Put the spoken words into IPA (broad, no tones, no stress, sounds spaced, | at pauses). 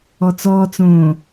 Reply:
ɔ t͡s ɔː t͡s õː